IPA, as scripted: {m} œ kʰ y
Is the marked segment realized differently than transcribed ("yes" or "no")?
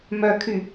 no